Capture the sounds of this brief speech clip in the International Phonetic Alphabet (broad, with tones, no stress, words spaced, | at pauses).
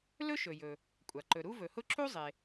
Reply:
lɵ˥ʃɵ˩jɵ˩ | kʷʼa˩ ǃɵ˩ ɾu˥vɵ˩hʊ˥ ǁu˥ zˤe˩